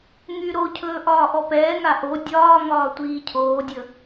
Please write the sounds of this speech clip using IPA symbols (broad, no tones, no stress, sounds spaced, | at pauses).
ŋ y ɾ o cʰ ɵː ʔ ɒː ʔ ɔ p ɛː ŋ a ʔ o dʲ ɒː ŋ ɒː tʷ iː cʰ oː dʲ ə